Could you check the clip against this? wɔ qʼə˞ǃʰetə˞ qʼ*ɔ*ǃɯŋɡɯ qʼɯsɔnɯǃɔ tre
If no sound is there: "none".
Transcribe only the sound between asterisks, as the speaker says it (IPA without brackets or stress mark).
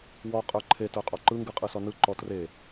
ɔ